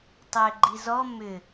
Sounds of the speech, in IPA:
tˤ ʏː ɡ͡ǃ i z ɔ m ʏ

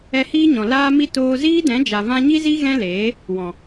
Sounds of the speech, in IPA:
ɛ˧ h iː˦ ɲ ɔ̃˨ l aː˧ m i˧ t oː˧ z iː˦ d ɛ̃˨˦ d͡ʒ a˨ v ã˧ ɲ i˦ z i˦ ɣ ɛ̃˦ l eː˨˦ | w ɔ̃˨

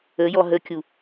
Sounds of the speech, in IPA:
ə j ɔ ɦ ə kʲ u

